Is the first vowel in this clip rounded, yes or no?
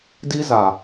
no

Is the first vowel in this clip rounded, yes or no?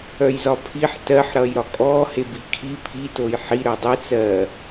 yes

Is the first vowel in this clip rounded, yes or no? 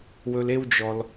yes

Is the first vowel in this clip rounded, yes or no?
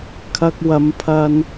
no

